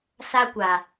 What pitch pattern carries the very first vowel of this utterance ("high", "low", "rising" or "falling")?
high